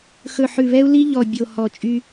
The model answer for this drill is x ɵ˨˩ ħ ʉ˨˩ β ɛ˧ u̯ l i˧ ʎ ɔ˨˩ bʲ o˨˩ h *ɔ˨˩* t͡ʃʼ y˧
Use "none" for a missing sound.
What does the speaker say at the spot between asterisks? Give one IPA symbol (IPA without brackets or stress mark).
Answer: ɔ˨˩